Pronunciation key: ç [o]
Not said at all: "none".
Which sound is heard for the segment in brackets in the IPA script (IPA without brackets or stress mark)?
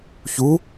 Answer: u